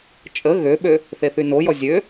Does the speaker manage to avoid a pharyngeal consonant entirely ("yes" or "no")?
yes